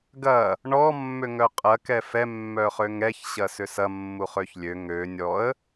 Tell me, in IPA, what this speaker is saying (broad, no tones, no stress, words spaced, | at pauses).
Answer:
ɡɐ | ɳɔ mːøŋœqʼɐ kɛfɛ mːœχøŋɛç ɕɐsʏsɐ mːuχøçlʲø ŋø nʲɔə̯